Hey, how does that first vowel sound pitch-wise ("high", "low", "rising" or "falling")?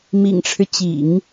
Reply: low